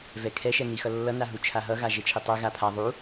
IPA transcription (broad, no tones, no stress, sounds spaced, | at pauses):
v ɛ kʰ ɛ ʃ ɛ n i x ʌ lː ʌ n a ɦ u t͡ʃʰ a ɦ ʌ ɣ a ʒ e t͡ʃʰ e tˤ ɛ ɣ a pʰ a ðˤ u